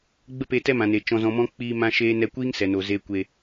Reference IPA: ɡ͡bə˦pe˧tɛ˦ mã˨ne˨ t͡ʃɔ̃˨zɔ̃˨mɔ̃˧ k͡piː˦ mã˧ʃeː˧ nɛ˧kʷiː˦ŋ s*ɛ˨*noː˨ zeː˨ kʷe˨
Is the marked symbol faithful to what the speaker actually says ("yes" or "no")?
yes